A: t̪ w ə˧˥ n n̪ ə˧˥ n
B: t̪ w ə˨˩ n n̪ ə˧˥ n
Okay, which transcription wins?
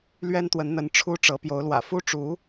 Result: A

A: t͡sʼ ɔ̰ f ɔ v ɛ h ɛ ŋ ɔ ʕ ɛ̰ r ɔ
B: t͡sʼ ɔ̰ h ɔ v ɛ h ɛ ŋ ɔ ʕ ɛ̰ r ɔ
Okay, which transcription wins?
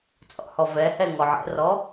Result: B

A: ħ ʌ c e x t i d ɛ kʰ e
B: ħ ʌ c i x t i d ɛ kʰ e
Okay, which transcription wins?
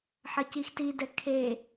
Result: B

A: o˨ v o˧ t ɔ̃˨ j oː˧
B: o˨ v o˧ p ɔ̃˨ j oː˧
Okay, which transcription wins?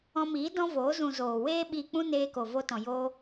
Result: A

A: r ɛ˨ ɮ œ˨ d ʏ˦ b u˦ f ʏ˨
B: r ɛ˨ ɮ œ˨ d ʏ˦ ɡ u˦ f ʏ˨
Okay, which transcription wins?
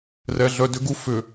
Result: B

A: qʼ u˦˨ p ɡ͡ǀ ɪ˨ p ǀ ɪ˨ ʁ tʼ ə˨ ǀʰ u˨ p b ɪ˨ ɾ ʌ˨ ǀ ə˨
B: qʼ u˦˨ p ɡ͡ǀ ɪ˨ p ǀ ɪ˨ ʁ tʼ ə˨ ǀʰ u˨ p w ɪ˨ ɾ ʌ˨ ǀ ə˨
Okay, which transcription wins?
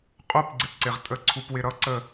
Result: B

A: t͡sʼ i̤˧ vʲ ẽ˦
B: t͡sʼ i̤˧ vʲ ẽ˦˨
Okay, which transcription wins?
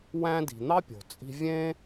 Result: A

